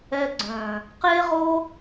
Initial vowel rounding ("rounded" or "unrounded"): unrounded